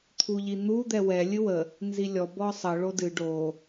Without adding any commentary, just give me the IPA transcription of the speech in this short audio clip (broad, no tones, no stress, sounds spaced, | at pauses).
t̪ʰ u ʎ i n̪ u d̪ ɛ w ɛ lʲ ɨ w ə | n z i lʲ ɔ b ɔ sˤ ə ɭ o d ɨ ɖ o